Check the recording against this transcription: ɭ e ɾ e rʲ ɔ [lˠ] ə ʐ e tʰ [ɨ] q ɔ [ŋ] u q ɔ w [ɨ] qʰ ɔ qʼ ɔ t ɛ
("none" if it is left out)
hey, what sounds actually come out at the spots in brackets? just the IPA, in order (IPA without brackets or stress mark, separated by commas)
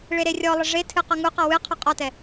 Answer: lˠ, ɨ, ŋ, ɨ